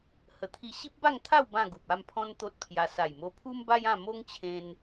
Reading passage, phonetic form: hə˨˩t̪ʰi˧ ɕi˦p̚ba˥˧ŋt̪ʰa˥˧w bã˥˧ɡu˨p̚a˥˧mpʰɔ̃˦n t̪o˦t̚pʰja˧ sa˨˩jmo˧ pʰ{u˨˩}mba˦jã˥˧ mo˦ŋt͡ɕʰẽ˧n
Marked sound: incorrect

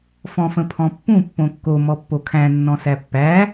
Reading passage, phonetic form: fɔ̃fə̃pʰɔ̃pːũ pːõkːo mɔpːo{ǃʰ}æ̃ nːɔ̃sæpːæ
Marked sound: incorrect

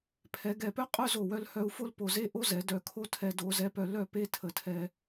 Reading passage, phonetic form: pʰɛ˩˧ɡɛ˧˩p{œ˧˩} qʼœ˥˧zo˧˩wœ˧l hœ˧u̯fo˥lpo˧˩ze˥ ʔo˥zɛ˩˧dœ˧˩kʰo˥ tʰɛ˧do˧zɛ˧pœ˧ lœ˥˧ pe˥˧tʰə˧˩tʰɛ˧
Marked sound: incorrect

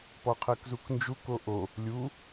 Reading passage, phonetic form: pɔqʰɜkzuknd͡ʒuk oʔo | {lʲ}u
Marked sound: correct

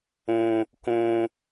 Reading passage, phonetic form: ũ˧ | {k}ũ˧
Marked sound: correct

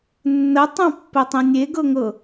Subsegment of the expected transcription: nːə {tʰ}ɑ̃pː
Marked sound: incorrect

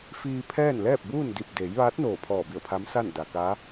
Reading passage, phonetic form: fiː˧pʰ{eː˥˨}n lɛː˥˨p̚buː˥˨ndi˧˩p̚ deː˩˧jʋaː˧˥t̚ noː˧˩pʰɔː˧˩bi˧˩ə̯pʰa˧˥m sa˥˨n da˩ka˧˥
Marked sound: incorrect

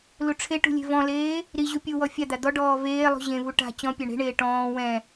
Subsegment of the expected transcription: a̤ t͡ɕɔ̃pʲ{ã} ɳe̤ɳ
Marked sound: incorrect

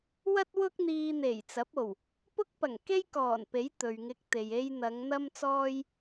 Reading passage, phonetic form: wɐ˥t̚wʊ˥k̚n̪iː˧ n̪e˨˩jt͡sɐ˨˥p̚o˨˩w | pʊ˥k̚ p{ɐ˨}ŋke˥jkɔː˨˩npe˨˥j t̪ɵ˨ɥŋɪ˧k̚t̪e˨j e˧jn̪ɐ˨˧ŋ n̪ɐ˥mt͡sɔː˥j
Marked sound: incorrect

